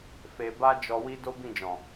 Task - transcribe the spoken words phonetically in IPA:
f e˧ b a˦ d͡ʒ ɔ˧ w i˦ d o˦ b ĩ˦˨ d͡ʒ ɔ̃˨

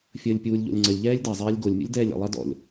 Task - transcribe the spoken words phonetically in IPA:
fʲ əː lʲ pʲ uː lʲ ʎ o̰ lʲ ŋ͡ǀ ə lʲ ʎ ɛː lʲ d ɐ zˤ ɛː lʲ ɡ o lʲ mʲ ṵ lʲ d ɛː lʲ ə̰ lˠ ɐ d ɔ̰ lʲ

